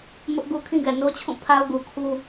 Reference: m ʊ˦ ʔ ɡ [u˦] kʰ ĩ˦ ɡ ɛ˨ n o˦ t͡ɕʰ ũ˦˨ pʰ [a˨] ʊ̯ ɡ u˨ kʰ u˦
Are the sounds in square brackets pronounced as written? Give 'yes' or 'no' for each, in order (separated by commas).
yes, no